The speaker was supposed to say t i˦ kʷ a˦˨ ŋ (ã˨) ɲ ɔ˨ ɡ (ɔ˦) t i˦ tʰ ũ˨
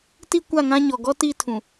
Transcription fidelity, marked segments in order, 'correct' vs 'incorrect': incorrect: ã˦, correct

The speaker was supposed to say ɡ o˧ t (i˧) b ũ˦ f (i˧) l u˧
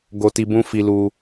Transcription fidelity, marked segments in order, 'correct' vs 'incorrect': correct, correct

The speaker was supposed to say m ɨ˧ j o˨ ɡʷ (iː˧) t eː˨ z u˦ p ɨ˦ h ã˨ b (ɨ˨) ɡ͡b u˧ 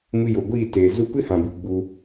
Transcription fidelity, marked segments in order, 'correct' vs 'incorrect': incorrect: iː˦˨, correct

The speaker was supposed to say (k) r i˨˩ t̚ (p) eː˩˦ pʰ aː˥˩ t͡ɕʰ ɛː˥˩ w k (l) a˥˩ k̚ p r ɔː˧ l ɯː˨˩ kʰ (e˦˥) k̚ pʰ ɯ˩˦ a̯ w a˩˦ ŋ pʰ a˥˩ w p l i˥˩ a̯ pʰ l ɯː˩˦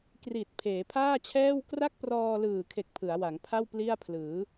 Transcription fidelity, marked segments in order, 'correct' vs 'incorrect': correct, incorrect: pʰ, incorrect: r, incorrect: e˨˩

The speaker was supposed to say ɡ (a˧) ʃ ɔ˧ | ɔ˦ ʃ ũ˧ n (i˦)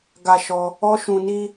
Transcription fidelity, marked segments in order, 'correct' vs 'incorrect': correct, correct

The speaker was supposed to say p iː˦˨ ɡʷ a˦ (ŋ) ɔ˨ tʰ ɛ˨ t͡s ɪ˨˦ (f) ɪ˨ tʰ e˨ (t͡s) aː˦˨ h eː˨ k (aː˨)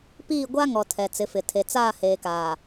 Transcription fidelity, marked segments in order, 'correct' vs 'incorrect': correct, correct, correct, correct

